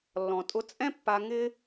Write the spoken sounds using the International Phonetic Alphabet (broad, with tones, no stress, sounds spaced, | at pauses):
lː ɔ̃˨ tʼ ʊ˧ t͡sʼ ɛ̃˦ pː a˧ ŋ ɪ˦